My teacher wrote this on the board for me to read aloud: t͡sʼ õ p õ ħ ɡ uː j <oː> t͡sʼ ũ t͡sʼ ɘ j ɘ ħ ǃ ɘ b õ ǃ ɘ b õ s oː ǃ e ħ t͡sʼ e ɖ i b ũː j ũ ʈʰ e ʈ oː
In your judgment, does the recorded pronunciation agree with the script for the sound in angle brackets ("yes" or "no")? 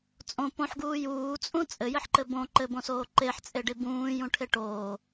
no